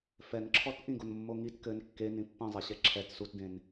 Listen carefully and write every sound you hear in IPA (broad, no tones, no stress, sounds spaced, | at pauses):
f ɛ n ǁʰ ɔ t ʔ ĩ ɡ o n mː o ŋ i t k ɘ n kː e n ĩ pː ĩ zˤ ɛ ɕ ɛ ǁʰ ɛ t s u t d ẽ n